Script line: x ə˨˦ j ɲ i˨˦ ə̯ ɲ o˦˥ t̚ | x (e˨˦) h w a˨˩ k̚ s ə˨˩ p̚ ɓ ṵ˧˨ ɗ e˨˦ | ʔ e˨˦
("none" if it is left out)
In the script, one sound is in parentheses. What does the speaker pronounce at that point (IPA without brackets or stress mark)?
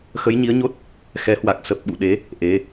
ɛ˨˦